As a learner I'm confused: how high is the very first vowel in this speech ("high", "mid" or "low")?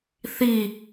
high